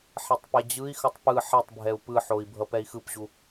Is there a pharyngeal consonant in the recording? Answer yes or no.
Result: yes